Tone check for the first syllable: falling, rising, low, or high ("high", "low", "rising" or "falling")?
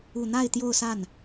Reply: low